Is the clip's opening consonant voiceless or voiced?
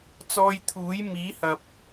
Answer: voiceless